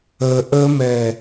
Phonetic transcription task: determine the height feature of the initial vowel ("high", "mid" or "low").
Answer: mid